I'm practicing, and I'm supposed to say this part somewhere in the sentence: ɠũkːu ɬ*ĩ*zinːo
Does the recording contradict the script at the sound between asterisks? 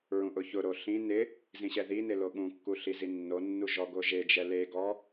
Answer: yes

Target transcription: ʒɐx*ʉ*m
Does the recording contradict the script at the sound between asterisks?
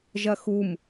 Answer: yes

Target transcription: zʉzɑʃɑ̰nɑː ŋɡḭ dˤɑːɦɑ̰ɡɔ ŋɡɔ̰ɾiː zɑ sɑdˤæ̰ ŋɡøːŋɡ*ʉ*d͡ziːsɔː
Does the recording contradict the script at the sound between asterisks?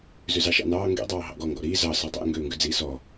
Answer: no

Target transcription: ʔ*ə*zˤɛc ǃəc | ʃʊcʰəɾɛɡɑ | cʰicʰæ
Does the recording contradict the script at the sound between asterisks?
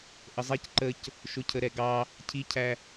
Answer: no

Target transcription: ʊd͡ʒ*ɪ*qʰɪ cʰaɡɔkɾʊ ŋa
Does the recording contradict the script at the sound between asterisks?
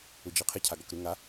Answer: yes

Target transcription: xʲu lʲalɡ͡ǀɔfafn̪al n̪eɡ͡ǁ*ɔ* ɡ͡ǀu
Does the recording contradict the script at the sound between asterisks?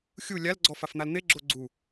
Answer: yes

